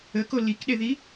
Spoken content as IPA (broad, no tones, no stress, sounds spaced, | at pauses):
ə k o l i k ɗ e ð i